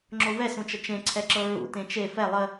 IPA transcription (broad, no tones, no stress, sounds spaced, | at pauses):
ŋ͡ǁ o v ɛ s ũ t͡ʃ ə t͡ʃ ẽ ǀʰ ɛ ǁ ɤ ɹ ṵ t ẽ t͡ʃ e f ɛ lˠ ə